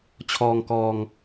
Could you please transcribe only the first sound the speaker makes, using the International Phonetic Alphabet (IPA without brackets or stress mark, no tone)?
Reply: t͡ɕʰ